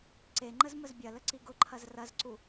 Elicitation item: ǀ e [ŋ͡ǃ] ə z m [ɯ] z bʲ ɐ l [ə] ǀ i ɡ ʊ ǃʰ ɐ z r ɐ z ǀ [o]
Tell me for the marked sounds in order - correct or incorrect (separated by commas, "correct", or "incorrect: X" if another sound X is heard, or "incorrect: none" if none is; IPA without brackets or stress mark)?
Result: correct, incorrect: ə, correct, incorrect: u